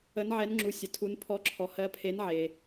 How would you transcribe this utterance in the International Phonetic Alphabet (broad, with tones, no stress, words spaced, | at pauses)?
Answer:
ə˨˦nʕɛ˨˦nŋ͡ǁu˨ sʲə˨tʰu˨˦n pʰɔ˨˦ǁʰɔ˨hɜ˨˦pʰe˨˦n ʕe˨